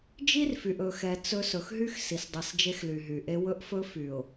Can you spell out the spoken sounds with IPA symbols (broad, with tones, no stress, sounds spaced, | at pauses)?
d͡ʒ i˦ r f y˨ ʔ ɵ˨ x ɛ˨ t͡s ɵ˦ s ɵ˨ x ɦ y˦ x s i˨ s dˤ i˨ s d͡ʒ e˦ x l y˨ ɦ y˨ ʔ e˦ w ɵ˦ ʔ f ɵ˦ f y˨ ʊ̯